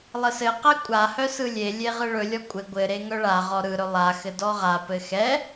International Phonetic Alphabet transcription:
lˠɘsɘqɛ kʷʼahœ sɯlʲelʲe ʁɯɭɵlʲɔ kʷʼɘ ɡʷɘɾe ŋœɭaʁɔ ɾɯɾɵ lˠaxɘ dɔʁapɘ xɛ

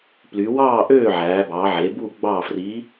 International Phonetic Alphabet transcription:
ply˩˧wɑː˥˨ ʔøː˥˨ʕæː˩˧bɑ˩˧ʕe˩˧ bu˥˨ ɡ͡bɑ˥˨ fri˧˥

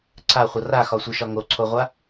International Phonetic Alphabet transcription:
ǀʰaχʷʌ raxɒsʷiʃɒ ŋoǀʰoʁʷa

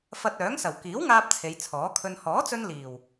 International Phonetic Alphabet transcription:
fɐ˧t̚œː˨˥ŋsɐ˨˩w kiː˨˥wŋaː˧p̚ t͡sʰe˨˧jt͡sʰɔː˨˥ kʰɵ˧n hɔː˨˥t͡sɵ˧n liː˨˩w

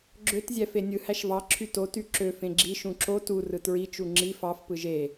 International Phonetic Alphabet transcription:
ɡ͡ǁøt zʲæfenʲɯ hæʃvɑ ǁʰyto tyǁø fẽɡ͡ǁi ʃũǁo tu rɯtɹi t͡ʃuŋ͡ǁi fɑf pɯʒe

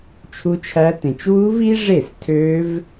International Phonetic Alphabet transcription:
t͡ʃʰu˦˥t͡ʃʰæ˦˥tẽ˧t͡ʃ wu˦˥vi˦˥ʐe˥˩s tʰø˦˥v

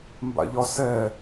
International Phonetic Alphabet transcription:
mba̰ʎɒsɛ

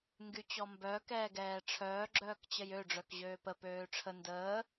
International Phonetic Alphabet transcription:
ŋɡyt͡ɕɔmbœ kɛːɡɛːʈ͡ʂʰœː ɡ͡ǁœːkt͡ɕəjø ɖ͡ʐœkʑøːpə pøːʈ͡ʂʰə ndəː

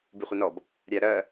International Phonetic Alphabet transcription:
biχʷinɔb | ɾʲæɾɜ

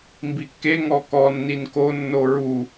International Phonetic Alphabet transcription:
mbikːe ŋɔkɔ nːinko nːoɹu

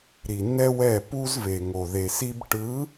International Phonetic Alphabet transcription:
ɾi˨nːɛ˦wɛ˦˨ pu˦zve˨ŋo˨ ðe˨si˦b ʈɯ˨˦

